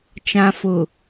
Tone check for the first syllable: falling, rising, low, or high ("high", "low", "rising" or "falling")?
low